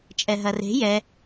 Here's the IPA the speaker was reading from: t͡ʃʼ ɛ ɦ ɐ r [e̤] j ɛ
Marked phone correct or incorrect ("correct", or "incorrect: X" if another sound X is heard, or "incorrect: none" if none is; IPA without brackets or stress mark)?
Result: correct